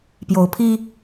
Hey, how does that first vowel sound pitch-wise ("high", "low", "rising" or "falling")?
rising